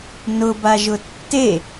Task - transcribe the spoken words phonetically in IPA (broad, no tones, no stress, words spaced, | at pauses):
nʊbaʒʊ tːe